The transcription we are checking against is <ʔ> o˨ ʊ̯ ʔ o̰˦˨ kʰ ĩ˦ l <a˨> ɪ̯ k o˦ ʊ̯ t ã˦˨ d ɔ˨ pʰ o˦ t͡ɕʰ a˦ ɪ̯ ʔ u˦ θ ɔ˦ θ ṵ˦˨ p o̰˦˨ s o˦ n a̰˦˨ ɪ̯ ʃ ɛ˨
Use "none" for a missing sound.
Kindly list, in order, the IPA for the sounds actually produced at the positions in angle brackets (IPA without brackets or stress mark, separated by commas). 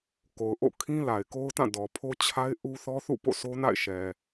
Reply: k, a˨